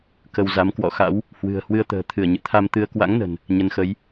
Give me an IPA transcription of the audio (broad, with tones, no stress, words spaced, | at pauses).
kə˧wza˨˦m kwɔ̰˧˨xa̰˧˥w | hwɨ̤˨˩ə̯hwɨ˧ə̯t̪ə̤ː˨˩ t̪ʰɨ˧˩ə̯ɲɨ̰˧˨t̪ʰa˧mt̪ɨ˧ə̯ kwa̰˧˥ŋnə̤˨˩n | ɲə˨˦nxə˨˦j